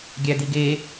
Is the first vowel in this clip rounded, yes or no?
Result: no